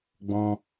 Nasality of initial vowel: nasal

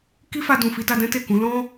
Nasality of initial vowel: oral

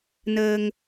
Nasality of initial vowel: oral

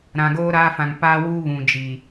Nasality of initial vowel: nasal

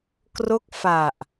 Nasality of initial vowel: oral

